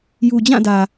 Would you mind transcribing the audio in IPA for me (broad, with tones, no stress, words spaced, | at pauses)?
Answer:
ju˨d͡ʑã˦˨dä˨